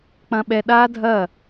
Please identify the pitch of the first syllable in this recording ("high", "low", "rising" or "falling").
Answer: high